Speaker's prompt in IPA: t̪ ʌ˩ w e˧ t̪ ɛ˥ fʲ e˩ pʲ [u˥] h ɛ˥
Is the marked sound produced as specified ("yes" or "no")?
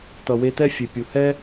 no